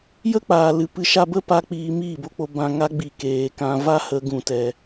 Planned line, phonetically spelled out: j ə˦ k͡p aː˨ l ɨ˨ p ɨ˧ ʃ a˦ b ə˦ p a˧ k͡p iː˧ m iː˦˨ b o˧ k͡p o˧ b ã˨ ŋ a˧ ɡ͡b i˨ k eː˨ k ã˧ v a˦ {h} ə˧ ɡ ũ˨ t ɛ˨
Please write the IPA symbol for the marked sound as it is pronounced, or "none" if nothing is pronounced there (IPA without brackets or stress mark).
h